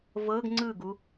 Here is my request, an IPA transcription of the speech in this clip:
vɤɡ ŋ͡ǀɯɡu

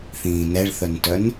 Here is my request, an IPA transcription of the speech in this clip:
θĩːnɛɭθœntœn

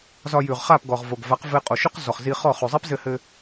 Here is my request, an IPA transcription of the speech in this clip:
zɒ˧jʉ˨ʁχa˦˨p ɡɔ˨ʁvo˨ɡva˨˦q vɘ˧qʼo˨ʃʉ˦q zɔ˨χzi˧χɔ˦˨ χʉ˨zˤi˦pzɘ˧hɘ˧

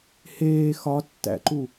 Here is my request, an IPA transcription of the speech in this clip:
heː xɒtːæ̰ǃu

